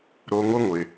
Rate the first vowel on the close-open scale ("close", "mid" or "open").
mid